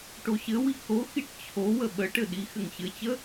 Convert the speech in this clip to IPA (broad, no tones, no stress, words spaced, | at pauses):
ʈoɕɘwi koxiʈ t͡ɕʰo wəɓəʈɘ ɗi xɘŋɕɘt͡ɕə